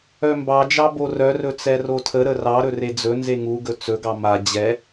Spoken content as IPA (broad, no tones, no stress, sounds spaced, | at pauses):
œ m b ɑ d͡ʒ ɑ b o r œ r ɵ t͡s ɛ r o tʰ ə ɾ ə r ɑ ɾ ɵ r e d͡z ɵ n z e ŋ u ɡ ɵ t͡s ɵ ɡ ɑ m a d͡ʑ ɛ